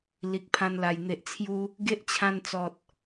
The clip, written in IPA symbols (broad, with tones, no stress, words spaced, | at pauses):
li˨k̚pʰã˧nla˨˩j n̪e˨ʔt͡sʰju˧ | ɡe˦ʔt͡ɕʰã˧nt͡sɔ˨t̚